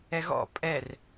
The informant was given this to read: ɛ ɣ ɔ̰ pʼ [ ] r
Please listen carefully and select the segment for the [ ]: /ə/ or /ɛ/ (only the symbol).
ɛ